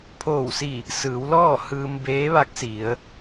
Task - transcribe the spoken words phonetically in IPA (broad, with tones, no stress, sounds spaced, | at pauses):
pʰ oː˧˩ w s i˧˩ | s ɯː˩˧ w l ɔː˥˨ h ɯː˧ m b eː˧˥ ʋ a˧˥ k̚ s i˩˧ ə̯